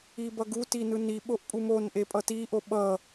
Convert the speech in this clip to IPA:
ibʌɡu tinɯni ɓoʔpʼumon ʔepʼʌti ʔoɓʌ

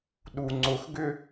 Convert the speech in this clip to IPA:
ɗu ŋ͡ǀʊxɡʏ

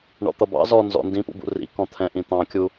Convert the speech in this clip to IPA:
ɳɔ̰t̪ʌbɑ̰ zɔ nzɔ̰ ndĩpṵbṵ rḭkɔ̃ t̪ʰɛ̃ʔĩt̪ɑ̃kʲu

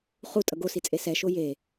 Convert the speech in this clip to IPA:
χu tʼʌɡosit͡sʼe sɛ ʃoje

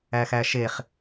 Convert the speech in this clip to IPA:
æxæʃeχ

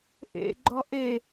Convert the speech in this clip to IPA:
ʔḛɡ͡ǃɔ ʔe

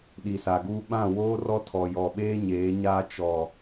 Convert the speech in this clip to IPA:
ɗi˨sa˨ɡuː˦ ɓã˦˨woː˦rɔ˦ tʰɔ˨jɔ˨ɓeː˦ɲeː˨˦ ɲaː˦ t͡ʃɔ˨

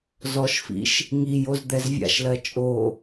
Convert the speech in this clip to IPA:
zɔʃfḭʃ | ŋijoz d̪ɛzvʲa̰ʃlɜ t͡ʃʼo

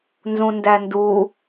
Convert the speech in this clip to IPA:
nzũndændu

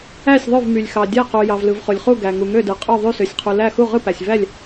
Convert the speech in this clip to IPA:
æ˧˩sʲðˤø˧˩vmy˩lʲ xɑ˩dʲæ˧˩qu˩ jɑ˩vlɯ˩vχo˩lʲχu˧˩ ɡæ˩ ŋu˩ŋø˧˩dɯ˩ qʼo˧˩ðˤy˧˩sø˩sʲqʰu˩ læ˧˩ xu˧˩ʁɯ˧˩pæ˩sʲvæ˧˩lʲ

